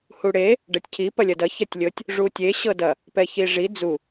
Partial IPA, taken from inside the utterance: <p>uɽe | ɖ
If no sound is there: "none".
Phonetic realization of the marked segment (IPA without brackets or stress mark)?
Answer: h